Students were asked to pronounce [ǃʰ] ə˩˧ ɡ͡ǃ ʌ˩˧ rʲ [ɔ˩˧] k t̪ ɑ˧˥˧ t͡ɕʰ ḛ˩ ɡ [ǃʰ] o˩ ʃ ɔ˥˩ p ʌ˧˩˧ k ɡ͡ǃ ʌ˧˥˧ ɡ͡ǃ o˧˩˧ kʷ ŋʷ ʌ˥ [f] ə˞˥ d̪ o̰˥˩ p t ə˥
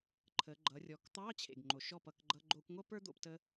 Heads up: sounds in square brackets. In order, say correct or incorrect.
correct, correct, incorrect: ŋ͡ǃ, incorrect: p

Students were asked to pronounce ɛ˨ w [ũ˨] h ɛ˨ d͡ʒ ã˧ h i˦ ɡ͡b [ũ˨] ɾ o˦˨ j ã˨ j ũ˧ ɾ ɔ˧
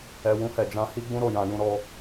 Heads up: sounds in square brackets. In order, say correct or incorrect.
incorrect: ũ˧, incorrect: ũ˦

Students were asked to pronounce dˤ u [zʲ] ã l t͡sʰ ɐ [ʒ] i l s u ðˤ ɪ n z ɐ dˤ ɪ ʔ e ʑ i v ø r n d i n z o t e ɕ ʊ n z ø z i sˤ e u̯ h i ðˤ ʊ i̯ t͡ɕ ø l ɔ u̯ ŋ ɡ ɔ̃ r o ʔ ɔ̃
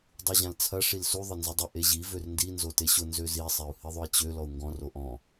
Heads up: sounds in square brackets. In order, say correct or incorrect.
incorrect: ʑ, incorrect: ʂ

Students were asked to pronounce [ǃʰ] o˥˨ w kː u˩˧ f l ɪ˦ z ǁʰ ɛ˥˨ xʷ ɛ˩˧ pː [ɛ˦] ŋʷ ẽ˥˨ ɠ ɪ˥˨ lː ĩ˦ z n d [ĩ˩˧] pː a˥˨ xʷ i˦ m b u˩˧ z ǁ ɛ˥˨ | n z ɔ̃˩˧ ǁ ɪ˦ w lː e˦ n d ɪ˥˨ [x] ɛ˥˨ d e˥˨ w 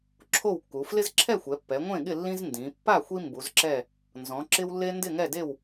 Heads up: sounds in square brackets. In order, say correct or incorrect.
incorrect: ǁʰ, incorrect: ɛ˩˧, correct, incorrect: ŋ

